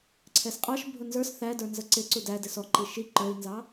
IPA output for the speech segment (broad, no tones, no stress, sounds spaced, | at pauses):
ǀʰ ɛ s qʼ ɑ ʃ bʱ ʊ n z ə˞ s θ æ d ə˞ n z ə ǀ ɪ ǀ u d æ d ɪ s ɔ ǃ i ʃ i ǃ ə˞ i̯ n z ɑ